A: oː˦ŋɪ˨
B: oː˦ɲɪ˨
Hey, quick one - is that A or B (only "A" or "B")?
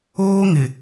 A